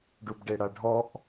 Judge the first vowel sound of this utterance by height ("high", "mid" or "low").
high